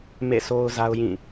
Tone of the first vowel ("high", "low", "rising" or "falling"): falling